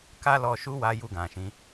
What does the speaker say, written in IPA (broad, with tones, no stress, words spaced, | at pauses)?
ka˦lɔ˧ ʃu˦wa˧ ju˧ɡã˨ʃĩ˨˦